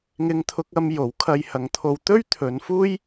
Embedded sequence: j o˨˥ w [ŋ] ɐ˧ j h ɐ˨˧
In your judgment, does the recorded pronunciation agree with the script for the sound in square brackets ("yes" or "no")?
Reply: no